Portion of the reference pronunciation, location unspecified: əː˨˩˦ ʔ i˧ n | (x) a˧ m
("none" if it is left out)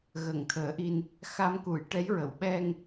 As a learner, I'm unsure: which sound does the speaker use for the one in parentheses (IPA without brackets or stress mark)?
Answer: x